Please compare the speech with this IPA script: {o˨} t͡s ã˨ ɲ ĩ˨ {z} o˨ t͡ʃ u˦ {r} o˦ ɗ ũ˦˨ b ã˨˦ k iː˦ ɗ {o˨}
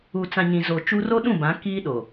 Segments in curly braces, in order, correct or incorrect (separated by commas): incorrect, correct, correct, correct